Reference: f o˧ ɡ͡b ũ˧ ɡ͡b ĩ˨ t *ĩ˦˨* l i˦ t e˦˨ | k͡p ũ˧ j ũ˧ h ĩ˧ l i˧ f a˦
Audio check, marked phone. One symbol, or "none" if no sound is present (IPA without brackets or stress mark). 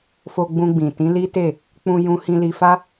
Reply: ĩ˨˦